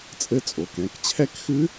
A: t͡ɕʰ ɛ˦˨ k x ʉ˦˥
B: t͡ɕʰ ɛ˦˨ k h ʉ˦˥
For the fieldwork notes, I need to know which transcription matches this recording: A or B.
A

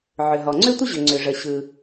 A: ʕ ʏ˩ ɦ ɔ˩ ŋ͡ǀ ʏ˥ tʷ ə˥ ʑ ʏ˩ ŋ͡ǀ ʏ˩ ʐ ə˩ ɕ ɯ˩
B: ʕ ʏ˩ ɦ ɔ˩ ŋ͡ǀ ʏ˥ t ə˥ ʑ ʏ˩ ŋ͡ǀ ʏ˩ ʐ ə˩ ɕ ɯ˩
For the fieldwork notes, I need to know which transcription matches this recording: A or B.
A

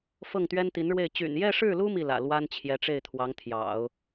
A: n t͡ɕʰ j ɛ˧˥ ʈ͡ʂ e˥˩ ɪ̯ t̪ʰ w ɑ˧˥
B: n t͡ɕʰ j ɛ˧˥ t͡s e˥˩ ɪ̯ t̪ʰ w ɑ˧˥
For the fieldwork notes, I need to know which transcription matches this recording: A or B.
A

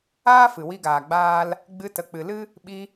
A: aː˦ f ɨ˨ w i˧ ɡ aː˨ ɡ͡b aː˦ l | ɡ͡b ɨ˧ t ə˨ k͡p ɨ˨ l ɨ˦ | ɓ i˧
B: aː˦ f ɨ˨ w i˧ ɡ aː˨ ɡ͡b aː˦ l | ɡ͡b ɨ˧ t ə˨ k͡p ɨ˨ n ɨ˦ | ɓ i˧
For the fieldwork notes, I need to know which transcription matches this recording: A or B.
A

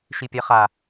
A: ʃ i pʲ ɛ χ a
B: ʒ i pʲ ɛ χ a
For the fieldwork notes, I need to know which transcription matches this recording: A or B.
A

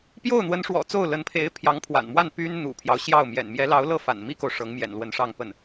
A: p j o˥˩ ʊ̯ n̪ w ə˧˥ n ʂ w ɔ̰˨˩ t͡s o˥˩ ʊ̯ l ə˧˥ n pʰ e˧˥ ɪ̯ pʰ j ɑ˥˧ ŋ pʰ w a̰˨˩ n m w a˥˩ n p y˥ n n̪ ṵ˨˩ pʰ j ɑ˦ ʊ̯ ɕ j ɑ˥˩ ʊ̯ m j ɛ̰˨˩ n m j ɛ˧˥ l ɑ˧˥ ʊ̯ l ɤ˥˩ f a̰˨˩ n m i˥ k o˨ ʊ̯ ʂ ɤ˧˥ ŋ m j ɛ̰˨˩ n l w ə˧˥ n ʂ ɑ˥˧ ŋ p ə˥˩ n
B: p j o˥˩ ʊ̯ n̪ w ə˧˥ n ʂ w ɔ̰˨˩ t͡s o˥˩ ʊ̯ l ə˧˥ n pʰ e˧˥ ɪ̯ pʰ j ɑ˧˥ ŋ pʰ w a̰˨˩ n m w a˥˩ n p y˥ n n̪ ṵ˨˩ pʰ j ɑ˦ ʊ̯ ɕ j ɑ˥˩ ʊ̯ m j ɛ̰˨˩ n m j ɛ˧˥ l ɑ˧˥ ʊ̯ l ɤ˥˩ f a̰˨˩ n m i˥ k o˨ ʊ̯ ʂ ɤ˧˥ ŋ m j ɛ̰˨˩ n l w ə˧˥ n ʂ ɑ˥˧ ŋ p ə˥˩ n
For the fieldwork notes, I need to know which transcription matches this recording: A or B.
B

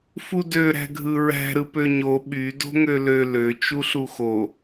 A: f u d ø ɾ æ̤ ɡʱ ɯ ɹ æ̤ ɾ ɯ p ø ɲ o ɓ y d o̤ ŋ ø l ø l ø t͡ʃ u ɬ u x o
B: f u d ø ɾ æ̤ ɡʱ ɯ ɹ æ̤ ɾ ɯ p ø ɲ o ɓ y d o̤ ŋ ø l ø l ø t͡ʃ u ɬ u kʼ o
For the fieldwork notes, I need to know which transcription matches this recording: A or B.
A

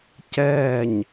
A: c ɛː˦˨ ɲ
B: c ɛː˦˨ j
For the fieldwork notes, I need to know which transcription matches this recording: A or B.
A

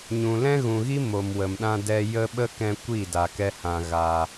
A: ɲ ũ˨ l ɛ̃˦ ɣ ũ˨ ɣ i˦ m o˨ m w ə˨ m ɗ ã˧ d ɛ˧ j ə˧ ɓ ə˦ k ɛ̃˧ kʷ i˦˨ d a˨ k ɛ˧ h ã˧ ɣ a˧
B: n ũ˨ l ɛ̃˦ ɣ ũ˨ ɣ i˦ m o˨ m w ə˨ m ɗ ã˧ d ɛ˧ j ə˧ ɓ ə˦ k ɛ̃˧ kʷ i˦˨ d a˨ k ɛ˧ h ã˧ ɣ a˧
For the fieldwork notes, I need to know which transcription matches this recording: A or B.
A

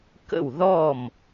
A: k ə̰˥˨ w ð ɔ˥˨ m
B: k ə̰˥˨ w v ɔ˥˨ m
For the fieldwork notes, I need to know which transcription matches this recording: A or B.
A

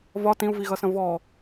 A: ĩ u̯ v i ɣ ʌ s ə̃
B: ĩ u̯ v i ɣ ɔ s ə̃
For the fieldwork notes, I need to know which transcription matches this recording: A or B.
A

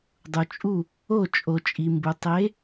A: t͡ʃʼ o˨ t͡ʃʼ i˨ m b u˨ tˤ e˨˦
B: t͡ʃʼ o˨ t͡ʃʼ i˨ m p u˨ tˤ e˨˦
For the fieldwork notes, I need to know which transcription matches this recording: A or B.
A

